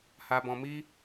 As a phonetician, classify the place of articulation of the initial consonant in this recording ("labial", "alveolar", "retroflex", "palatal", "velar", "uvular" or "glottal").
glottal